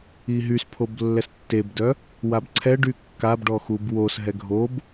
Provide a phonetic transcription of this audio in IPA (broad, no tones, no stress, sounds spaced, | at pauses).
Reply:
i ɦ y s pʰ o b lː ɛ s tː e b d œ | w a b ǀʰ ɛ ɖ y kː a b ɖ ɔ x u b w o s ɦ ɛ ɡʱ o b